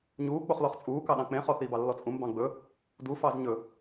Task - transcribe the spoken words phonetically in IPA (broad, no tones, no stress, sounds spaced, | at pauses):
ɲ uː k͡p o χ l ɔ χ t͡sʼ uː k ɑ ɗ ɑ̃ k͡p ẽ χ ɔ θ iː b ɑ lː ɔ t͡sʼ ũ m b ɑ̃ ɡ͡b ɵ | d u f ɑ z ɲ ɵ